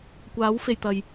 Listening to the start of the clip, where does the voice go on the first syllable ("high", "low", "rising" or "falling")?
rising